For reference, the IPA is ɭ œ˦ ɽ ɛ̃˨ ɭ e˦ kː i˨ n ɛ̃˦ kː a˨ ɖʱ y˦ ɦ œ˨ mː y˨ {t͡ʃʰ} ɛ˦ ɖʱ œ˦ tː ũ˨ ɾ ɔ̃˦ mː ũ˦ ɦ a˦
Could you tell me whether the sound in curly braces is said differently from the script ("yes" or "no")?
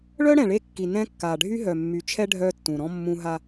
no